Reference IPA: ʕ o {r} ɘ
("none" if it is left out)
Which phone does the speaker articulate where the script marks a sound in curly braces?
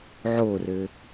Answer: r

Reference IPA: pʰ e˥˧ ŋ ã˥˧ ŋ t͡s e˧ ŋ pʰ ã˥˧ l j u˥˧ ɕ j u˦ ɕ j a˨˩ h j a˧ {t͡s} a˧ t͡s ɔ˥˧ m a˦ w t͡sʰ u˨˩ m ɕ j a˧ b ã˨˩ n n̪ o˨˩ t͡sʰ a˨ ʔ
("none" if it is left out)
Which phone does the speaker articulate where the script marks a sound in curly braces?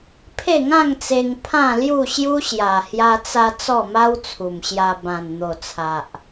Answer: t͡s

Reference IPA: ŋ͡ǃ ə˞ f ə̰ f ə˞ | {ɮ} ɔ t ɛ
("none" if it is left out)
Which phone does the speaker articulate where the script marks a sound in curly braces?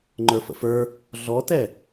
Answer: ɮ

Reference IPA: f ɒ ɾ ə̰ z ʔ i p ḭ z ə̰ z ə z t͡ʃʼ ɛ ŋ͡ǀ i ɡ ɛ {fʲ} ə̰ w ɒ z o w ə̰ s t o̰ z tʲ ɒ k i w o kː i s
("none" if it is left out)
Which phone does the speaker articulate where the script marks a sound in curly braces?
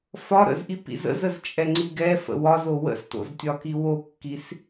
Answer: f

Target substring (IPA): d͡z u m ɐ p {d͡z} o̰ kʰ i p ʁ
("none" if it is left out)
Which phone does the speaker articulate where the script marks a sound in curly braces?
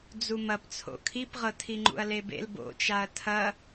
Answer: t͡sʰ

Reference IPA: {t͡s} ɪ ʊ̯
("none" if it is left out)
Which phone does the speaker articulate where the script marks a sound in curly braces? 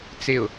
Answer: t͡s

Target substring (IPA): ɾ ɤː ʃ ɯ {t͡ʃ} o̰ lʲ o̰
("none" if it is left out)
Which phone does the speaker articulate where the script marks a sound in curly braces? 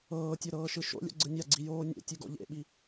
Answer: ʃ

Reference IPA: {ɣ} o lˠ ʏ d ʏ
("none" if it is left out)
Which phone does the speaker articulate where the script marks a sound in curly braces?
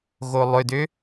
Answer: ɣ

